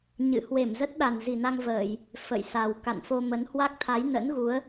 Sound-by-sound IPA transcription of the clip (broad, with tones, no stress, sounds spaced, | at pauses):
ɲ ɨ̰˧˨ h w e˧˩ m z ə˦˥ t̚ ɗ a˨˩ n z i˨˩ n a˧ ŋ v əː˧˩˨ j | f ə̰˧˨ j s a˨˩ w k a̰˧˨ n f o˧ m ə˨˦ n h w a˦˥ k̚ t̪ʰ a˨˦ j n ə̰˧˥ n ɣ u˨˦ ə̯